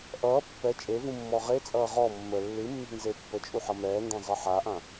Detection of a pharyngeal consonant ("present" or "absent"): present